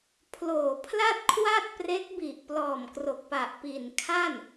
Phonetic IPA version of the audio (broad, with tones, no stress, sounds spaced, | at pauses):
pʰ l oː˨˩ pʰ l a˥˩ t̚ kʰ w a˥˩ t̚ p r e˦˥ k̚ b i˨˩ ʔ p l ɔː˨˩ m k r o˨˩ k̚ p a˨˩ ʔ p i˨˩ n kʰ a˥˩ n